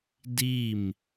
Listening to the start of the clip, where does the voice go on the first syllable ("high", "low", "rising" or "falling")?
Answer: falling